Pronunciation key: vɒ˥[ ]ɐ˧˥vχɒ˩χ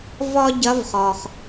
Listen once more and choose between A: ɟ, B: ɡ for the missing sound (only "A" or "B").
A